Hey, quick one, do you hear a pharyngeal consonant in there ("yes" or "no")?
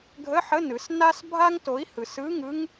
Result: yes